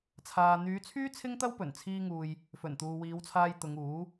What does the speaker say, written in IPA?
t͡sʰaː˨n̪yː˨˧t͡sʰyː˥ t͡sʰɪ˥ŋt̪ɐ˥wpɵ˨˩n t͡sʰiː˥ŋuː˧j | fɵ˨˩nt̪uː˨wiː˨˧wt͡sʰaː˧j t̪ʊ˨˧ŋ uː˨˥

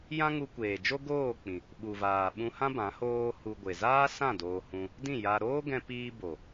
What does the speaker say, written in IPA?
jã˦ŋu˧kʷeː˨d͡ʒo˦ ɡoː˦˨k͡pĩ˨ | ɓu˨vaː˨ ɓũ˧hã˦ bã˨˦hoː˦hu˧ ɡʷe˨zaː˦sã˦˨ doː˧ hũ˧ | dĩ˦˨ja˧ ɾoː˦ɡɛ̃˧ piː˧ bo˨

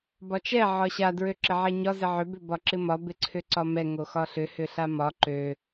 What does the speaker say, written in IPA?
bɒt͡ʃɛ ʕɒɕa dɹøǁɪʕɛɲɒ zɪʕʏ bʏbɒǁɪmɒ bɪǀʰʏǀɒmɛ ŋoxɒɬʏ hʏɬamɒ ǃø

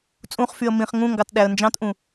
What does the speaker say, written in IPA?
t͡sʼũχfyə̯ mĩχ ŋũŋɡɑt ɗæə̯nd͡ʒɑ̃tʔũ

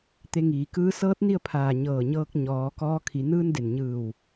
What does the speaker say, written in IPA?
t̪e˧ŋiː˩˧kɯː˧˥ sɤː˧˥t̚ ni˥˨ə̯pʰaː˧˩ ɲɤː˧˩ɲɤː˧k̚ ɲɔː˩˧ kɔː˧kʰi˩˧ nɯː˧n de˩nɲɯː˧˩w

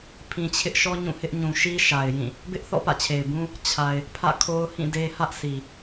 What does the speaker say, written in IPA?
pʰĩ˨ t͡ɕʰɪ˦ʔʃɔ˦ ɲũ˦˨hɪ˦ʔ ɲũ˨ʃi˦ʃa˨ɪ̯ jĩ˦˨ | bɪ˦ʔθɔ̰˦˨ pä̰˦˨t͡ɕʰe˨ɪ̯ bũ˦ | t͡ɕʰa˨ɪ̯ | pʰä̰˦˨kʰo˦ʊ̯hĩ˦˨de˦ hä˦ʔsi˨

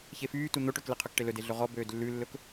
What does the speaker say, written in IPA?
çefyːtu n̪oʈøkleqʰɵk ʈelɵde ɮɵʁɔ bøːdlːʉlːɵk

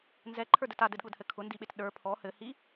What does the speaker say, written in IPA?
nzɛǃʰə˞dɘt adɘdɠʊdhɘ kʰʊndiɓet ɗə˞ pʰɔ hɘhi

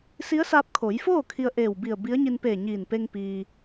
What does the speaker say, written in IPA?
si˧˥ə̯saː˧p̚ kʰo˩˧jfoː˥˨ kʰi˧ə̯ʔeː˧˩wbi˧˩ə̯ bi˧˥ə̯ɲi˧npeː˧˩ ɲiː˧˩npe˧ŋ piː˩

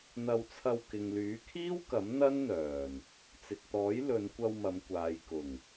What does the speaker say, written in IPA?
n̪ɐ˧wt͡sʰɐ˧w kɪ˨ŋlyː˨˥kʰiː˥wkɐ˨˥m n̪ɐ˥nn̪œː˨˩n | t͡sɪ˨k̚t̪ɔː˨˥j lɵ˨˧nkʷɐ˧w mɐ˨˧m kʷaː˨j kʊ˨˩ŋ

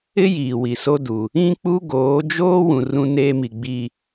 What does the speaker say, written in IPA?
ɪ˦ jiː˨wi˨so˦du˨ | ĩ˦k͡pu˦ɡoː˨˦d͡ʒoː˦ wũ˨rũ˦ neː˦mi˨ ɡ͡bi˦

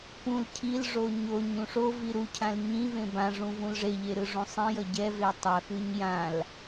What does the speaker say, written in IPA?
pũl cʰilʐo ɲoɲ ũʂovi ɾucʰãl ɲĩvẽ bãʐũ vũlʐeʎe ɾɯʐũsˤĩjʌ ɟɛve tˤʌxɯɲ jãl

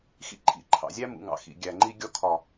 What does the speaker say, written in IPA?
xḭ˧ǃʰḭ˨˦ ǃʰɑ̰˨zʲæ˦mṵ˨ŋɑ̰˨ xḭ˨ɡʲæ˨ ŋ͡ǃi˧ ɡʲɔ˧kʰɒ˨

